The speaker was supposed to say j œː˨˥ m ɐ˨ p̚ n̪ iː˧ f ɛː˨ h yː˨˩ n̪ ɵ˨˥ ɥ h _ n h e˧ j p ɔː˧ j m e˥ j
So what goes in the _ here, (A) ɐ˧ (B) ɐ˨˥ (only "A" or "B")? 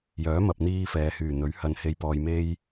A